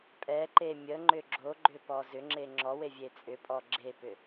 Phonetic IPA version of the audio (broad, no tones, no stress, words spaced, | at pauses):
pʼɛǃe mʲəŋ͡ǃʏ ɡ͡ǁoɡ͡ǃʏpɔ zʏŋ͡ǁe ŋ͡ǁɔwevʲe t͡sʼʏpʼɔ ɡ͡ǁepʏ